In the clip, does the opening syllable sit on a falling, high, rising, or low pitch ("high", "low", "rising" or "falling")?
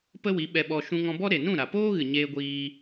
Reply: high